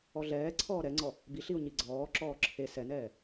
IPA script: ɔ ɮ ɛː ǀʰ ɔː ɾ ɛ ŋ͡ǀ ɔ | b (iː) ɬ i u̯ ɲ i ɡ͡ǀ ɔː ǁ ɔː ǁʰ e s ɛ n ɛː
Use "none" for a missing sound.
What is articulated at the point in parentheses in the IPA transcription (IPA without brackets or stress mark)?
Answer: i